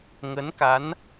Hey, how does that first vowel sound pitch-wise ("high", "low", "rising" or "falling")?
rising